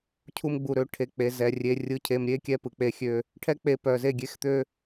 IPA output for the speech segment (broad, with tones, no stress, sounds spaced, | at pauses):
cʰ u˧ m ɡ͡b u˨ ɾ ø˨˦ ʈʰ e˧ k͡p e˧ z ɛ˧ rʲ e˧ rʲ ɯ˧ cʰ e˧ m ɾʲ e˦ kʲ ɛ˦ p ɯ˨ k͡p e˦ xʲ ø˦ | ʈʰ ɛ˦ k͡p e˧ p œ˨ z e˦˨ ɡʲ e˦ x t̪ ø˦